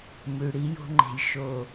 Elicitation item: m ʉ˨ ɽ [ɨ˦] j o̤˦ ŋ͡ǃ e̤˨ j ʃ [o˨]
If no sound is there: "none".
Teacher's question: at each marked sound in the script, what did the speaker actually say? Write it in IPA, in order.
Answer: i˦, o˨

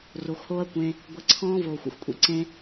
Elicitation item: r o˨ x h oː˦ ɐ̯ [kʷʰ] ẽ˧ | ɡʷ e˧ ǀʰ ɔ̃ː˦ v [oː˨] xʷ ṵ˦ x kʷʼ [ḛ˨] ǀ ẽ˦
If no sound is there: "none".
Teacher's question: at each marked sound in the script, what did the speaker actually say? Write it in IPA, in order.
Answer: kʷ, oː˨, ḭ˨

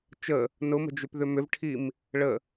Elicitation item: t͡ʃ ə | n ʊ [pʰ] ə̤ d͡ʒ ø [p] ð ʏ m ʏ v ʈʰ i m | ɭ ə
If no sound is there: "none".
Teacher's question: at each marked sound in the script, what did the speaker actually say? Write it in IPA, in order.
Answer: m, p

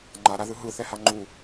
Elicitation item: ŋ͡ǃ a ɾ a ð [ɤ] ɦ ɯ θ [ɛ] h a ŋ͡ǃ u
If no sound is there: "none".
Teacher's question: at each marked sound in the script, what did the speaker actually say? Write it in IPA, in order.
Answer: ɯ, ɛ

